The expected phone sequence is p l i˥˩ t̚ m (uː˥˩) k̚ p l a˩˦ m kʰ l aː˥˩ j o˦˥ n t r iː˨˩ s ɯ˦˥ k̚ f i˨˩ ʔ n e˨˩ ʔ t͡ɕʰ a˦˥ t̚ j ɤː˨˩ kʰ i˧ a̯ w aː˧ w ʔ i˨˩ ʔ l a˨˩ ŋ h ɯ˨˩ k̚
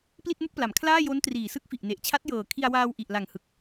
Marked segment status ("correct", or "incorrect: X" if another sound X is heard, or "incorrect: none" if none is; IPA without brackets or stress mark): incorrect: u˥˩